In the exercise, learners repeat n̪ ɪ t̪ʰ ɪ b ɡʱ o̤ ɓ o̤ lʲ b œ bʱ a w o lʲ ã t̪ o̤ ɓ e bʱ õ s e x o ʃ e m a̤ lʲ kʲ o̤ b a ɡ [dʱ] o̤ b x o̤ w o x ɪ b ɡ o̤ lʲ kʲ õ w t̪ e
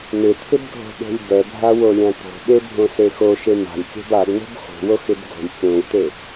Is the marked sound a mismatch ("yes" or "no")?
yes